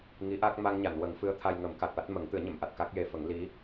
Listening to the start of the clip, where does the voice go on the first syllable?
rising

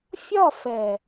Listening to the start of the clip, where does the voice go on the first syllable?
falling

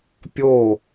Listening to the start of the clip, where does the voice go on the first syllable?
falling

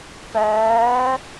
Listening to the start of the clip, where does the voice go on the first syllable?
rising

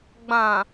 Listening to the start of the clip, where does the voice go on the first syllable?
low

